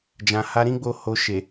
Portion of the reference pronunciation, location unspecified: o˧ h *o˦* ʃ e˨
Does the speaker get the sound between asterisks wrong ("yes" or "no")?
yes